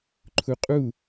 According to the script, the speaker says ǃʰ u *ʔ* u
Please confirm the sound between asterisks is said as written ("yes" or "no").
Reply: no